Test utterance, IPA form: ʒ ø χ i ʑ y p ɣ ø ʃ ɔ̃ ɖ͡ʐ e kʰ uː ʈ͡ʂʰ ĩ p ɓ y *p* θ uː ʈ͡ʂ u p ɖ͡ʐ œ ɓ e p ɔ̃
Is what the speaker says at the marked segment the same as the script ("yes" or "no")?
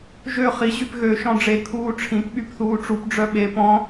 yes